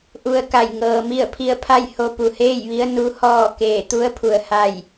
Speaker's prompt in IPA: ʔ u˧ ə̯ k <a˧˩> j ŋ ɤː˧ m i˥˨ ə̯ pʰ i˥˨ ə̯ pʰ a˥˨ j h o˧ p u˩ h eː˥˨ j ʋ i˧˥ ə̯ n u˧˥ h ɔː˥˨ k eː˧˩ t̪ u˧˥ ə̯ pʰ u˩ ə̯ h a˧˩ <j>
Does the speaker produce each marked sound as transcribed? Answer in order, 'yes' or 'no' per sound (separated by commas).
yes, yes